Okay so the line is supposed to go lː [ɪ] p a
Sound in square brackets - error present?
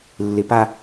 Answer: no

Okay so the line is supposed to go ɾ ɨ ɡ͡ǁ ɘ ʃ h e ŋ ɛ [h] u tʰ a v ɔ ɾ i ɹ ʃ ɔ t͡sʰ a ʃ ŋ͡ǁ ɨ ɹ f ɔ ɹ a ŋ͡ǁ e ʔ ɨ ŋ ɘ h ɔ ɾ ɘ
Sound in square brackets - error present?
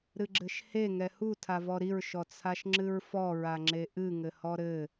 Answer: no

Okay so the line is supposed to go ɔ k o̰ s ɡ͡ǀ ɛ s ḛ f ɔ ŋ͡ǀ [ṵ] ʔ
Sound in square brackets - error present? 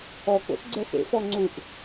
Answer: yes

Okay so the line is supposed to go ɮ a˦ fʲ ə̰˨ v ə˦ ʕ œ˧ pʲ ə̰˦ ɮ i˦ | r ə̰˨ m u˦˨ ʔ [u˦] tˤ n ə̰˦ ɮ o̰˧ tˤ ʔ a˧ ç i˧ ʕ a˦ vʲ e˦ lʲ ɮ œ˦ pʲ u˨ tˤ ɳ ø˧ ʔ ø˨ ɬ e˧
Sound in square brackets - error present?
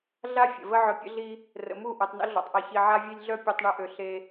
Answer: yes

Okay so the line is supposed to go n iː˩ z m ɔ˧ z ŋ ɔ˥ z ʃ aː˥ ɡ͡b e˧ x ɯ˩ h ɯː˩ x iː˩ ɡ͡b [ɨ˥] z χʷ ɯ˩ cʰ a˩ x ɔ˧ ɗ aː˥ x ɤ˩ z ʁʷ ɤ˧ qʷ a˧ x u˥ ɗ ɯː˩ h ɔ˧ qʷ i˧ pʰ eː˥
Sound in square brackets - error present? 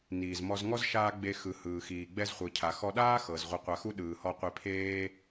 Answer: yes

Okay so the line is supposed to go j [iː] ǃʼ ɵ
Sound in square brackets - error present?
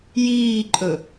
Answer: no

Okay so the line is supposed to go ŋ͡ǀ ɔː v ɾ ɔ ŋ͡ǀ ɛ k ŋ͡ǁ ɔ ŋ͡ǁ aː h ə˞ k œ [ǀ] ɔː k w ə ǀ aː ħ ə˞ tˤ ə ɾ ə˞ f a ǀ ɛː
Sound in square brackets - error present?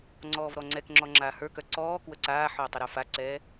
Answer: no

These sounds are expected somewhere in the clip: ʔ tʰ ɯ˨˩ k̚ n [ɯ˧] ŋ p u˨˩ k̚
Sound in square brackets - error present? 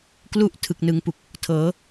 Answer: yes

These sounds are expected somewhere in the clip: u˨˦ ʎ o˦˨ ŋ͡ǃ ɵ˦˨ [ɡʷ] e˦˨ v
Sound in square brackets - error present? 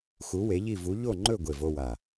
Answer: no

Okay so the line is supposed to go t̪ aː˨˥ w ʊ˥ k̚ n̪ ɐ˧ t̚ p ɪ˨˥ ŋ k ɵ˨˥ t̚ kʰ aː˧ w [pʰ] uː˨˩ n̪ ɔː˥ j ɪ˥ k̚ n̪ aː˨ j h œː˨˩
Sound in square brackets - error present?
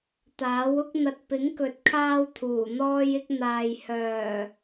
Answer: yes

